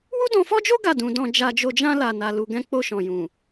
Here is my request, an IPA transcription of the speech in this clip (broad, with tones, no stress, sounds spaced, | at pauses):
w u˦ d ɔ̃˧ f ɔ˦ d͡ʒ o˦ ɡ a˦˨ d ũ˧ d ɔ̃˧ d͡ʒ a˧ d͡ʒ o˧ d͡ʒ ã˧ l a˨ n a˨ l u˧ ɡ ɛ̃˦ k͡p o˧ ʃ ɔ̃˨ j ũ˨